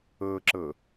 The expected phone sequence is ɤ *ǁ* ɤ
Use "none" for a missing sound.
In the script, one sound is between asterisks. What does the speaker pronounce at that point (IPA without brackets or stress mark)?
ǁ